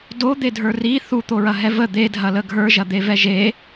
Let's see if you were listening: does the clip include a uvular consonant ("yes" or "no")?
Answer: no